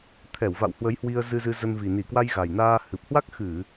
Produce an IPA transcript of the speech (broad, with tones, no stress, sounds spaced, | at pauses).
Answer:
t̪ʰ ɛ˧˩ w v a̰˧˨ w h w ə˨˦ j h w i˧ ə̯ z ɨ˧ z ɨ˧ z ə˧ n v i˨˩ n i˧˩ k w a˧ j ɣ a˨˩ j n aː˧ h ɨ˨˩ p̚ h w a˦˥ k̚ x ɨ˧˩˨